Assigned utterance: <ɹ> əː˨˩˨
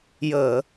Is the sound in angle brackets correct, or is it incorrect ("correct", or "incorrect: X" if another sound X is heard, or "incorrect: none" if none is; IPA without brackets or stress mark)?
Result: incorrect: j